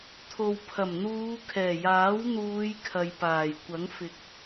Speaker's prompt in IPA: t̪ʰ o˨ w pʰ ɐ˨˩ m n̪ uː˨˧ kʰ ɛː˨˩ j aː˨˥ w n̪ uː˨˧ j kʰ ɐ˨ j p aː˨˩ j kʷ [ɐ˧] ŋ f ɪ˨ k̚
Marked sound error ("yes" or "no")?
yes